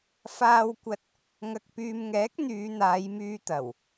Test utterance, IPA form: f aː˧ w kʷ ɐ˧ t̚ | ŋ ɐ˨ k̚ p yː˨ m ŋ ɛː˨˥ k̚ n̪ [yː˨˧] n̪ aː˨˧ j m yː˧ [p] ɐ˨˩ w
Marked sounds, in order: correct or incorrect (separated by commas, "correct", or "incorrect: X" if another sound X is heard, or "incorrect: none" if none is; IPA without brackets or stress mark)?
correct, incorrect: t̪